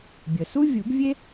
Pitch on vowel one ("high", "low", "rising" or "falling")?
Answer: low